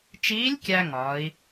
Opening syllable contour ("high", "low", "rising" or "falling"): rising